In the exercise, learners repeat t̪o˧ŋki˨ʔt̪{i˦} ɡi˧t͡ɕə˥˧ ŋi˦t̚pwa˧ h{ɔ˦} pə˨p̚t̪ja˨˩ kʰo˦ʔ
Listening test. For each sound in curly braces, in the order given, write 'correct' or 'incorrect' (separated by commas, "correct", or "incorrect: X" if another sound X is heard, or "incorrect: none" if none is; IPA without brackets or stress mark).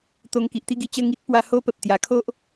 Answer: correct, incorrect: o˦